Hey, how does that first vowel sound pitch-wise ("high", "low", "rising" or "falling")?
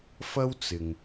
high